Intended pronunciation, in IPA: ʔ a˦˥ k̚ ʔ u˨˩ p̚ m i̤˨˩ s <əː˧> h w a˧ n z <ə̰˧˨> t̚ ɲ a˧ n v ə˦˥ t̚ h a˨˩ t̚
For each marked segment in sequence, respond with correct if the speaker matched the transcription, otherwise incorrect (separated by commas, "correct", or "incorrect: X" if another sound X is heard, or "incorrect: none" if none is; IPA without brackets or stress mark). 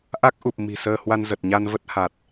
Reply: correct, incorrect: ə˨˩